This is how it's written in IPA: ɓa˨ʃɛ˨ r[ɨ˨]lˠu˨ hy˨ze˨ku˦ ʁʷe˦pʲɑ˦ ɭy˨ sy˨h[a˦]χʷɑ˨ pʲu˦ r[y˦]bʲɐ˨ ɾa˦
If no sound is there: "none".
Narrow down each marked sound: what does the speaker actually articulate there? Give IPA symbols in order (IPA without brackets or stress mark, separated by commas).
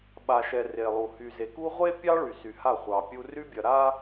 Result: e˨, a˦˨, y˦